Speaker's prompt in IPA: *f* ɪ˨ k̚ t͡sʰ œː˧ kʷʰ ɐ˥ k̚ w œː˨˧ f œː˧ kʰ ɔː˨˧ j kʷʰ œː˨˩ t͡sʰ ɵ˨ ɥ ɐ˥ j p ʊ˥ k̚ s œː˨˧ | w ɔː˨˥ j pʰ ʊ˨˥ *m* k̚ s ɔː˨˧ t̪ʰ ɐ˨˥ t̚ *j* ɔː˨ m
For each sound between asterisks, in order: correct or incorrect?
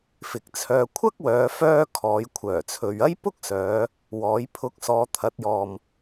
correct, incorrect: none, correct

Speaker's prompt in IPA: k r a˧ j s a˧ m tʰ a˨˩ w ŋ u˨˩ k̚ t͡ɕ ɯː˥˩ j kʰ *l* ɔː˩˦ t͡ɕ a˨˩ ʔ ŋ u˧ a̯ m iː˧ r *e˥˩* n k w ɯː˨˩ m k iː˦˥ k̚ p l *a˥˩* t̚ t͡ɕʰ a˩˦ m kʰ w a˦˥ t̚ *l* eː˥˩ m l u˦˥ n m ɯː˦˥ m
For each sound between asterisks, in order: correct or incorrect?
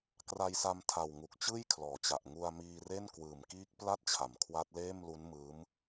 correct, correct, correct, correct

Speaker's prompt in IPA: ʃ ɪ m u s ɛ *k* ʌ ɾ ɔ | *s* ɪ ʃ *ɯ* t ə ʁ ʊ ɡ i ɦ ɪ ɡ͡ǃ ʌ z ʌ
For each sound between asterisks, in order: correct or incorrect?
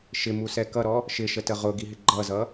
correct, incorrect: ʃ, incorrect: ə

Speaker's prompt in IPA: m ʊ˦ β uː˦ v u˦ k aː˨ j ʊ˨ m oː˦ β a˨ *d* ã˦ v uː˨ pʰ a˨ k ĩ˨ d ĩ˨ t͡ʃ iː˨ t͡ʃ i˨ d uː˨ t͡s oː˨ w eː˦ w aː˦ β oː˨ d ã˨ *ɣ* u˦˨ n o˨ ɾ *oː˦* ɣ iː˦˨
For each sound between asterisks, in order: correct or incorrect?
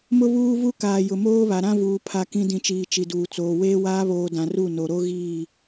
incorrect: ɾ, incorrect: r, incorrect: o˦

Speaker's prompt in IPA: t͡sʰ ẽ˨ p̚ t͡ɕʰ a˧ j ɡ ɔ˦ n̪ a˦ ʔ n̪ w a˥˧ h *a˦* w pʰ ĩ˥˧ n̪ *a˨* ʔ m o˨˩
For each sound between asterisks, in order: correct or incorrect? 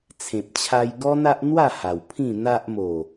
incorrect: a˨˩, incorrect: a˦

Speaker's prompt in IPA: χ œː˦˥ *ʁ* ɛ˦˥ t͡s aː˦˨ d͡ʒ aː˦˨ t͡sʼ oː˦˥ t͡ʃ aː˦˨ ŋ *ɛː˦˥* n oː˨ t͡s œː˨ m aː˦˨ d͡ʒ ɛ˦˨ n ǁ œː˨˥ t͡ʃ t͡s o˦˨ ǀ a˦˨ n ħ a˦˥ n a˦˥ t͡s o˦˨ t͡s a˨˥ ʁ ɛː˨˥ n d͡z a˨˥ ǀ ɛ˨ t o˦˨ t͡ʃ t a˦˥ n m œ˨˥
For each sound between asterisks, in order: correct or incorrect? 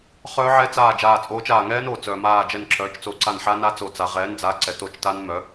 incorrect: ʕ, correct

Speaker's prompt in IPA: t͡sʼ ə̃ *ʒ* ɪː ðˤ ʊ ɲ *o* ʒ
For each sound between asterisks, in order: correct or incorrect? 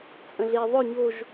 incorrect: ɮ, correct

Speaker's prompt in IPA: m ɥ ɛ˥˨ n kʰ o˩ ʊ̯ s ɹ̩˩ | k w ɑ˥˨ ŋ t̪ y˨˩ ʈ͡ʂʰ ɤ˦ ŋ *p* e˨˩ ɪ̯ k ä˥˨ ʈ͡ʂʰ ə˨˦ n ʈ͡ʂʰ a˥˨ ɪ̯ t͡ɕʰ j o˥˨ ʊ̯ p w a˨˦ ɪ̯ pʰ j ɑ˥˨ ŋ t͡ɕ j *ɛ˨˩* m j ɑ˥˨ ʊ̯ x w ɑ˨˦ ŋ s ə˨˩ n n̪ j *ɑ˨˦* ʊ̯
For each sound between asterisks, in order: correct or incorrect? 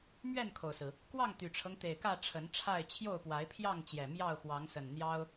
incorrect: t̪, correct, incorrect: ɑ˦

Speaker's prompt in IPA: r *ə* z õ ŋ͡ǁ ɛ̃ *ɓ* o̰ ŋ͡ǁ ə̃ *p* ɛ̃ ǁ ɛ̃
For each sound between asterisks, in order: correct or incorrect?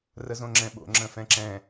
correct, correct, incorrect: f

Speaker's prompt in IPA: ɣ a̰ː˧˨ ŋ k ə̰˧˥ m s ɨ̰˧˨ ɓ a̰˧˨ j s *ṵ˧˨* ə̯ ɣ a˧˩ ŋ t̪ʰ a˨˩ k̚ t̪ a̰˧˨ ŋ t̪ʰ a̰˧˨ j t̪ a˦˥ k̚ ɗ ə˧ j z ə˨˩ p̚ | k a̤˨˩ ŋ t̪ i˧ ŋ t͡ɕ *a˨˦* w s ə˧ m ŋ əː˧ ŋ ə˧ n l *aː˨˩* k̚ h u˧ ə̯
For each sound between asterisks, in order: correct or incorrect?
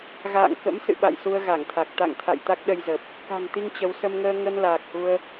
incorrect: u˧, incorrect: ə˨˦, correct

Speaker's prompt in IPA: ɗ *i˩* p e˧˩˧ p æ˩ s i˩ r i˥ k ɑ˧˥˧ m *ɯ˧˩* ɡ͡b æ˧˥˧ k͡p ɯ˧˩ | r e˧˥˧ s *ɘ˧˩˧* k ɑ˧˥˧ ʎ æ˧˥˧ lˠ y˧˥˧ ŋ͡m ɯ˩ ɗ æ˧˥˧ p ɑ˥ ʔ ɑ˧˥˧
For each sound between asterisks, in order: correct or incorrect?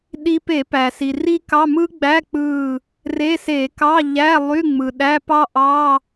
incorrect: i˧, incorrect: ɯ˥, incorrect: e˧˩˧

